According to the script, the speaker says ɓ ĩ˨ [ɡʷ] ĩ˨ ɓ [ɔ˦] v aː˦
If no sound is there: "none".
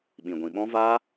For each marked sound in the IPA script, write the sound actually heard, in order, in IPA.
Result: ɡʷ, ɔ̃˦

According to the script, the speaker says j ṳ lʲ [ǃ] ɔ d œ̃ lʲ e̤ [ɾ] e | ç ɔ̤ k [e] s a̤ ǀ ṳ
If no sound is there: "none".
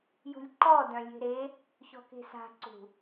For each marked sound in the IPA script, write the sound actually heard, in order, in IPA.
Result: ǃ, ɾ, e̤

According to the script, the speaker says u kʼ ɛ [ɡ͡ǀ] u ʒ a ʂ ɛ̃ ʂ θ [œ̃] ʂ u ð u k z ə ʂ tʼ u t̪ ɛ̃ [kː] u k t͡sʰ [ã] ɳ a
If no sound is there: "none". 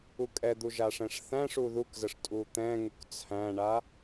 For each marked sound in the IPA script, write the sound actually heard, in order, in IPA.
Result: d̪, æ̃, ŋ, æ̃

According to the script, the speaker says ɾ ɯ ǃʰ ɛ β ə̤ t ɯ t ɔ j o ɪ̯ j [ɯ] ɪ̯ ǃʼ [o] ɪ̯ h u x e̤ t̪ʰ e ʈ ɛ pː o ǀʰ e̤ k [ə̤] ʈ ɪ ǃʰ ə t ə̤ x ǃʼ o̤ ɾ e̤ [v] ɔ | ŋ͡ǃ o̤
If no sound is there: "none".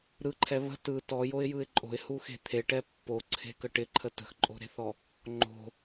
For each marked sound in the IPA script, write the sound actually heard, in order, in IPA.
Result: ɯ, o̤, ə, θ

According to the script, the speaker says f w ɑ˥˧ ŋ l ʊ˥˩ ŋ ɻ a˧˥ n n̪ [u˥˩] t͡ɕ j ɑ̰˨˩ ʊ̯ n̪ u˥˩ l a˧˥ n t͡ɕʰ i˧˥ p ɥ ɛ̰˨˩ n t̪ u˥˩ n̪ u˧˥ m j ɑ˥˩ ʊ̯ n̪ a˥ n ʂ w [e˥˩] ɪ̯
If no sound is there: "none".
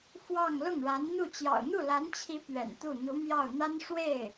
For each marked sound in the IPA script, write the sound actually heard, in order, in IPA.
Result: u˥˩, e˥˩

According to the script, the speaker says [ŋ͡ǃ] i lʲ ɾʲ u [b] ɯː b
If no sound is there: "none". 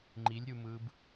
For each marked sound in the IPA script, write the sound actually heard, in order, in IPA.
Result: ŋ͡ǃ, m

